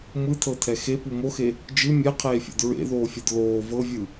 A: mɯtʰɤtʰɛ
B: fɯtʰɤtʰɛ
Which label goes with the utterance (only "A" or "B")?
A